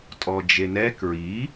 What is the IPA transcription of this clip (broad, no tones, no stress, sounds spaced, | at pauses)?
tʼ ɔ d͡ʒ e n ɛ k ɹ i